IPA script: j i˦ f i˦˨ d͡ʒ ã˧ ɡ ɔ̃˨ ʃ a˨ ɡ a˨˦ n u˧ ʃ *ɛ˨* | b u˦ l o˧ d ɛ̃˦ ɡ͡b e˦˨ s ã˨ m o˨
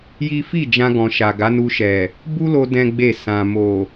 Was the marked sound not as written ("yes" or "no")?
no